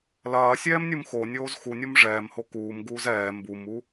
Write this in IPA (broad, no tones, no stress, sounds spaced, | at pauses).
l ɐː sʲ ɛː m nʲ u m x o nʲ oː z x u nʲ o m ʐ ɛː m h o k uː m ɡ uː z ɛː m b u m u